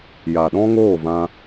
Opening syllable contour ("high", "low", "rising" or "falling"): low